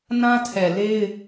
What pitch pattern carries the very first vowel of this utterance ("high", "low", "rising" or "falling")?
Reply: high